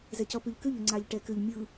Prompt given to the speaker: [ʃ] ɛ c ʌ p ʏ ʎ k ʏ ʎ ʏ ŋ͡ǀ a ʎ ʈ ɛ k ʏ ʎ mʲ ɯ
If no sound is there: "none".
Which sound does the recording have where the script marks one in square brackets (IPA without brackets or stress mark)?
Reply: z